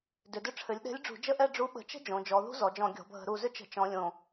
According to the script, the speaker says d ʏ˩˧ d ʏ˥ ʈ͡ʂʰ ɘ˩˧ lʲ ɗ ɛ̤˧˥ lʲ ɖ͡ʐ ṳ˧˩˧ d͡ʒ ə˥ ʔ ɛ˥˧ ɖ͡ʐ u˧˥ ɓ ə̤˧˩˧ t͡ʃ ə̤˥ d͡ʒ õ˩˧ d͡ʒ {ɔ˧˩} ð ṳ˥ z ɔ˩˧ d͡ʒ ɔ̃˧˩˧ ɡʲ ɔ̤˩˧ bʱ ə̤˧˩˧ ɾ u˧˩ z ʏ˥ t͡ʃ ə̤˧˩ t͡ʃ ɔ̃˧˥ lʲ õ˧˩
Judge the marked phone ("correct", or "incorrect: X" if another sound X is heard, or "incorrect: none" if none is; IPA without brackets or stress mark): incorrect: ɔ˩˧